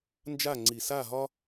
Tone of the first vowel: falling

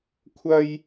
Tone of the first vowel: high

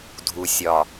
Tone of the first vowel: low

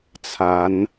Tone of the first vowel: rising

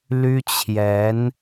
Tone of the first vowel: high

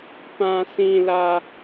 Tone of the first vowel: low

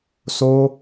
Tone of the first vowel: high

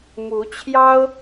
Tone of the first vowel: rising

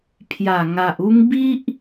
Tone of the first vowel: low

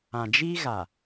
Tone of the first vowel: low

